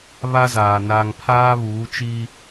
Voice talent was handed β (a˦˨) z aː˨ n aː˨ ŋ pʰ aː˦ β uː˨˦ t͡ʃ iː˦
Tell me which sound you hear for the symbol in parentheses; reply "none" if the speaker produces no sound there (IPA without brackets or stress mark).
a˦